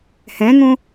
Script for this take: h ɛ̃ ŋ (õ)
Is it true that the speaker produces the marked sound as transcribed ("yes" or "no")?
yes